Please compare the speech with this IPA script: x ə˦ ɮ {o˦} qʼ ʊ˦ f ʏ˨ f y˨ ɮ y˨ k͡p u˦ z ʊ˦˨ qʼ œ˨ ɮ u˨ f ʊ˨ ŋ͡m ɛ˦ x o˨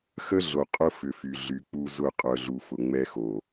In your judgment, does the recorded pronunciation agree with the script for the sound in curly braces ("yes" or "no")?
no